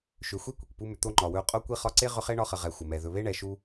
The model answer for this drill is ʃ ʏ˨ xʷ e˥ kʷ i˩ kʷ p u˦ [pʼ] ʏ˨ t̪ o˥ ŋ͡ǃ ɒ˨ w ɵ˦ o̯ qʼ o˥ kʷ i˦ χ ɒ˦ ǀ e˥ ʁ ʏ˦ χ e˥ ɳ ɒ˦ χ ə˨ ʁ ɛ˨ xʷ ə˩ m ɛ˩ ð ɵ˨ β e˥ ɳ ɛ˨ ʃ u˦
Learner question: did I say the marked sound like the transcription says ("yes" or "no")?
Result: no